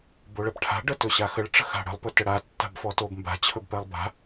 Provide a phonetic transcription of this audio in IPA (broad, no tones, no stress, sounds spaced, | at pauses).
b o ɭ ɛ p ʈʰ a̤ ɖ ə t ɵ ɕ a x ə ɭ ʈ͡ʂ ə̤ x a̤ ɽ ə̤ lˠ p ɵ t ə ɽ a tː a̤ b f ɔ t o b m b a̤ t͡ɕʰ ɵ b p ɛ lˠ b a̤